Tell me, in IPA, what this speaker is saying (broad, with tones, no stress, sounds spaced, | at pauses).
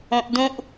õ˦ ʔ d ũ˦ ʔ